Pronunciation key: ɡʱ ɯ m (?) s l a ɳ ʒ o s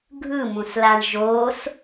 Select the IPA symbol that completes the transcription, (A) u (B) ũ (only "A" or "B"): B